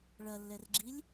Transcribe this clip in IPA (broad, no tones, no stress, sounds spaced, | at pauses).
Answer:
ɭ ɐ lː ɛ r ɡ͡ǁ i lʲ